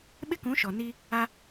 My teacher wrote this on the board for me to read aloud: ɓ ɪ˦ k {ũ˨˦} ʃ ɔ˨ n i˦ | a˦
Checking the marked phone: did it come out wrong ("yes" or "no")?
no